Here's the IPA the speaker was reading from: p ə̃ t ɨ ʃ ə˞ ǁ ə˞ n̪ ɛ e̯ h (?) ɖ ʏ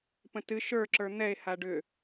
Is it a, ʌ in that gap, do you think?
a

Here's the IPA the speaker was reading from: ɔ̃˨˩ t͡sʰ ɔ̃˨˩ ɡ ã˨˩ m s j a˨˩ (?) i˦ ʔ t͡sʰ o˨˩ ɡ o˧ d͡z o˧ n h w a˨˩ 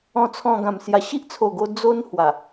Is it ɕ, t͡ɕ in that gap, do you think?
ɕ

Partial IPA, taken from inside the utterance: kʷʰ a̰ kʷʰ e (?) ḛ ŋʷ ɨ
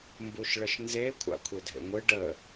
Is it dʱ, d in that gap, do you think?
dʱ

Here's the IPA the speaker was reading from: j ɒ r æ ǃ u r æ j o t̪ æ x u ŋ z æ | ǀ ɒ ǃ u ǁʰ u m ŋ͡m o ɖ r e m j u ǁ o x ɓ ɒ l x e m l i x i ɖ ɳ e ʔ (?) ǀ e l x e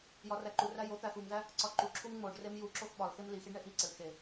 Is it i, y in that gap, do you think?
i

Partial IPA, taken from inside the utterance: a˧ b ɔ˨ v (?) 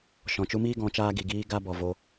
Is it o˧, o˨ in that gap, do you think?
o˧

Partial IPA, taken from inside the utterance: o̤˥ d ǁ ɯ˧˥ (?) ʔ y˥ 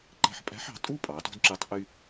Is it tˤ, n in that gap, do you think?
tˤ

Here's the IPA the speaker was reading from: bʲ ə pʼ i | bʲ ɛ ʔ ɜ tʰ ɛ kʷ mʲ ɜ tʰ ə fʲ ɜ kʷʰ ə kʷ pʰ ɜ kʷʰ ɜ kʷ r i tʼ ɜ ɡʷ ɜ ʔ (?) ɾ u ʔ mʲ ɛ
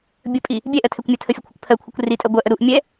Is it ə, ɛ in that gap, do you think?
ə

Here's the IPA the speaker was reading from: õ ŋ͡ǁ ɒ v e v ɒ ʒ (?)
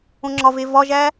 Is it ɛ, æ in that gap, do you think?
æ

